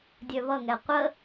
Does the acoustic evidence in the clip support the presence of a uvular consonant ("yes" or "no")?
yes